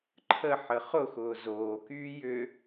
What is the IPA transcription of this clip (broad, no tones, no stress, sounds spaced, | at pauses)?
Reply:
ǃʰ ə ħ ə χ ʊ x ʊː z oː k yː j ʏ